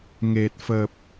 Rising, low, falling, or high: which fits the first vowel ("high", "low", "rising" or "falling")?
low